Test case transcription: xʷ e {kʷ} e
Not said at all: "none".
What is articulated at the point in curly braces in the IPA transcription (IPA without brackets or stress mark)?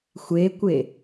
kʷ